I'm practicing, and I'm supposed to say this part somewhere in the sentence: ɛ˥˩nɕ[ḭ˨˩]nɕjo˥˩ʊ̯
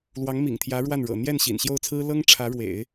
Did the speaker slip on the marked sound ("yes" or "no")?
no